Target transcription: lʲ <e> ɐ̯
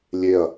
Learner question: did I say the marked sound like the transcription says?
yes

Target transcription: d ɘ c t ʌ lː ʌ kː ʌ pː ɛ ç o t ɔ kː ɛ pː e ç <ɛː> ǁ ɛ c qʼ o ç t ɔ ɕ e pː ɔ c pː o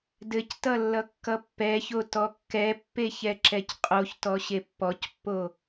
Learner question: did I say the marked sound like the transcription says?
no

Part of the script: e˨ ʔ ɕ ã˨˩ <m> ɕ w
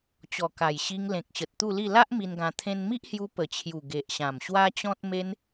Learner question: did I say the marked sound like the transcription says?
yes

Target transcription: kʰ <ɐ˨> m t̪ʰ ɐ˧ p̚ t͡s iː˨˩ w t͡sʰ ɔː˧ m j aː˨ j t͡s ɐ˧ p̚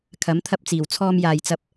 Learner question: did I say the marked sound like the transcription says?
no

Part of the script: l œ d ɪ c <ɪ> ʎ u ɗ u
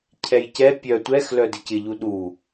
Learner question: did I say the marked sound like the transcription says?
yes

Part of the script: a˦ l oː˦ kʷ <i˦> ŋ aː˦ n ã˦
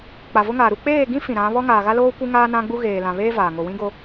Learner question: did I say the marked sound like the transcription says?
yes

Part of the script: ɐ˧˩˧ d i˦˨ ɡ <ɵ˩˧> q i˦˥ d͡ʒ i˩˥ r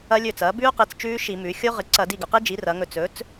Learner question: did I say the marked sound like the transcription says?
yes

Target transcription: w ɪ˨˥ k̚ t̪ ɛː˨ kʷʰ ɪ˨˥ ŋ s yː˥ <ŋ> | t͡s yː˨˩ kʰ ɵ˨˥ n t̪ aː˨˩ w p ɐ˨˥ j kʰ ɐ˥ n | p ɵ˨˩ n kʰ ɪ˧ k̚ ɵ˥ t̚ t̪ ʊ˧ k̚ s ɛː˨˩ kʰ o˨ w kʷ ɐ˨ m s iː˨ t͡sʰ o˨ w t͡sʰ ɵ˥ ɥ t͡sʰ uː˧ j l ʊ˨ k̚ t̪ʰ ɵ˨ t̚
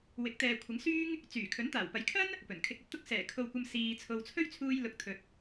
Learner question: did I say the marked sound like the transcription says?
yes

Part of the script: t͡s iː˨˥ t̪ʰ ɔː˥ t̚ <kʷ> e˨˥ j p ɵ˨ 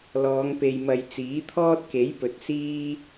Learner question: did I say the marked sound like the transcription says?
no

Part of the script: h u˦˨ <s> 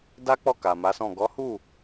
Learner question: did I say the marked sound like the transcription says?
no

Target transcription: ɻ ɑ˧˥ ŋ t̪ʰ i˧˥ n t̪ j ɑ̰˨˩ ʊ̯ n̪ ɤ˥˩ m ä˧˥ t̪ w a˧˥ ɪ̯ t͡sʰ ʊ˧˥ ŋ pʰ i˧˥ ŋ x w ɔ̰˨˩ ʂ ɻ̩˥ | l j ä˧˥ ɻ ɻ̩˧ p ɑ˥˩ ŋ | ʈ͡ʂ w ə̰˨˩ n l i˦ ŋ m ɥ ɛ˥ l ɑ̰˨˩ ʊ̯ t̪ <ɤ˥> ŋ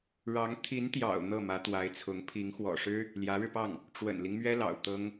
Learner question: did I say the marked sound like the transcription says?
yes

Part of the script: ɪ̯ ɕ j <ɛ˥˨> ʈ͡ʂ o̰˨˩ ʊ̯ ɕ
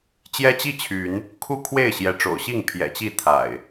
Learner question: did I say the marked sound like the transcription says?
no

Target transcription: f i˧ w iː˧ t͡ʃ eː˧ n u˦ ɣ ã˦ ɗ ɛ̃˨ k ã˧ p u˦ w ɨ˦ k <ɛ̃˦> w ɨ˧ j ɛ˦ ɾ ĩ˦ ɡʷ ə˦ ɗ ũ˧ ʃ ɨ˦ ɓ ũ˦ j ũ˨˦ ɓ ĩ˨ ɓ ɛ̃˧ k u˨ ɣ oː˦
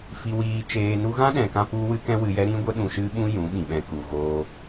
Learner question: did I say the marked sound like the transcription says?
yes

